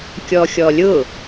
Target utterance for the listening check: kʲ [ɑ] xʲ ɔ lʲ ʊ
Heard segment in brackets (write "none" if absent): ɔ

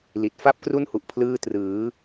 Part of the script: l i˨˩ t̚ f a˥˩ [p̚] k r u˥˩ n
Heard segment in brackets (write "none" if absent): p̚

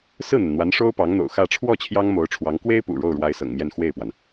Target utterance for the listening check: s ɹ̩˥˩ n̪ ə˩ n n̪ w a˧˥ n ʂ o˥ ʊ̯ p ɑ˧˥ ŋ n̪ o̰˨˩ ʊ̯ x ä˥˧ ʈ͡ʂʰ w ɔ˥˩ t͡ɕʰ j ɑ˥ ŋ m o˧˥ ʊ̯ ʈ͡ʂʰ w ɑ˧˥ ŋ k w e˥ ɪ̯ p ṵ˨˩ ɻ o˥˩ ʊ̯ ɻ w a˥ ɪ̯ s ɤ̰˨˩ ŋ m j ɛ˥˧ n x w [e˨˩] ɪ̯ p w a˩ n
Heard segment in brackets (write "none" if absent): e˥˩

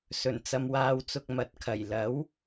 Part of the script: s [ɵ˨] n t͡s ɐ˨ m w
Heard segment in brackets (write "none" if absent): ɵ˨˩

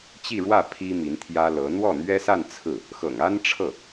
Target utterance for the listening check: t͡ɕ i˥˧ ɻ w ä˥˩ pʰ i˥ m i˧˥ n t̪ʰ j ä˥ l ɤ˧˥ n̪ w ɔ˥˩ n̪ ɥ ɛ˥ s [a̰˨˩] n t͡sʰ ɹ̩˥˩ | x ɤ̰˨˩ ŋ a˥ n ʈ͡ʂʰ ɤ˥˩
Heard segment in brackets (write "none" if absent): a˥˧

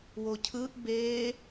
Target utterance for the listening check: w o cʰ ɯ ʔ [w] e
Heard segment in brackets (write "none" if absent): b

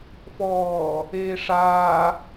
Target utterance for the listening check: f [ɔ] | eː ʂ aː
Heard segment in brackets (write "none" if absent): ɔː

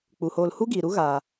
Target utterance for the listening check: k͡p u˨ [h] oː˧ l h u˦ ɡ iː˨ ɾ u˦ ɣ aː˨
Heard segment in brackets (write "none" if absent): h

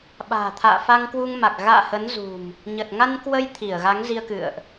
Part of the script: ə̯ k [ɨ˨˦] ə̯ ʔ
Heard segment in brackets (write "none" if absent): ɨ̰˧˨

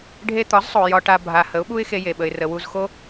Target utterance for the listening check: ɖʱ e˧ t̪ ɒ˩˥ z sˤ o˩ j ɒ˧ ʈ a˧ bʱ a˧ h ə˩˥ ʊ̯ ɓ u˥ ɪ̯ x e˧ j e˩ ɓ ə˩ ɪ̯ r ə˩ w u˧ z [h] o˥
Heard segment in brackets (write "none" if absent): x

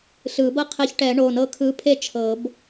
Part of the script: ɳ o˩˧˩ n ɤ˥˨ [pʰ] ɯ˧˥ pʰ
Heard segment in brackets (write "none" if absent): kʰ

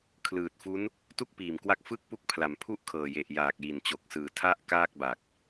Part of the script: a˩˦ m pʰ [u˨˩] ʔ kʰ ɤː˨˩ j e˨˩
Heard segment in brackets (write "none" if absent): u˥˩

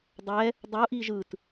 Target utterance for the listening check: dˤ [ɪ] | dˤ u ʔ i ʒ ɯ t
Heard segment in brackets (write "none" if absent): ɛ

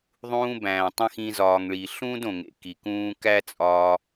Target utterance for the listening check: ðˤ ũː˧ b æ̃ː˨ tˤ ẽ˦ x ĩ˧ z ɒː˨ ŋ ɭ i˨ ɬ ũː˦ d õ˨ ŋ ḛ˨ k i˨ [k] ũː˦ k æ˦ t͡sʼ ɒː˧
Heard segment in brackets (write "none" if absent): k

